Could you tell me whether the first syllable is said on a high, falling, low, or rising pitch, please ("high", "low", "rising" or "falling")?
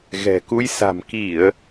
low